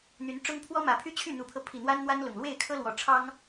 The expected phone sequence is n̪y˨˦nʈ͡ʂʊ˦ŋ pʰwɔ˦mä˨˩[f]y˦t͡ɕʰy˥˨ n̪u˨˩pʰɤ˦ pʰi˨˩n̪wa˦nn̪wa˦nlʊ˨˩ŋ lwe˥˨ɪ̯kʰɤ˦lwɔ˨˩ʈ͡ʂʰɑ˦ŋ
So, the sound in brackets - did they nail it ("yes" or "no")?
no